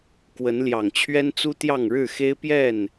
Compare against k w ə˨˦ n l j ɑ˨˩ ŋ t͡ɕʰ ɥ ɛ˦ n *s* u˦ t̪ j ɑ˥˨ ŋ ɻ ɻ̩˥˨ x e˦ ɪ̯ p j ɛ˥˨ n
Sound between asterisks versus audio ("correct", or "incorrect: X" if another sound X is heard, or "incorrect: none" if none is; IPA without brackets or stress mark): incorrect: t͡s